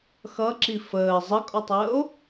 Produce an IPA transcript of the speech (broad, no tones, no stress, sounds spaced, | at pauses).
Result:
x ʌ ǁ i f əː zˤ ə kʼ ɔ tˤ əː o̯